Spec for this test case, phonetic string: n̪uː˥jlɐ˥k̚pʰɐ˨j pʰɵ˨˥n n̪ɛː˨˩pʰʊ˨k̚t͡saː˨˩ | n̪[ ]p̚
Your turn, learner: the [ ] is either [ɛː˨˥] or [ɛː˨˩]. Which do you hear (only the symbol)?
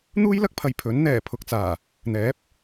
ɛː˨˥